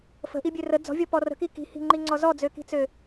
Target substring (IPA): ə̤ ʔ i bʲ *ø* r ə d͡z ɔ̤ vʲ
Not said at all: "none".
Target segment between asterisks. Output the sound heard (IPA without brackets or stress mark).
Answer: ø